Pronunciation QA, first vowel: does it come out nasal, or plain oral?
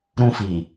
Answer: nasal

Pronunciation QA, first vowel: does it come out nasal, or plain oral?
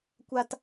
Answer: oral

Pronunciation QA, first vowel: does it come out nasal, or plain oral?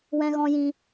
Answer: nasal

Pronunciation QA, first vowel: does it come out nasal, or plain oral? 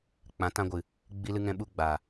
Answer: nasal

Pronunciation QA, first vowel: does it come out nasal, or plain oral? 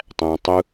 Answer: nasal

